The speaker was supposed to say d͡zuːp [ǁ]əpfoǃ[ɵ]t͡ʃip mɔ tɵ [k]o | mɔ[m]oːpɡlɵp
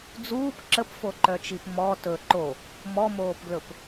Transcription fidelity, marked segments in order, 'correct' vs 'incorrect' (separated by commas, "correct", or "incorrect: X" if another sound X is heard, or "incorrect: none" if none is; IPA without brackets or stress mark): correct, incorrect: œ, incorrect: ǃ, correct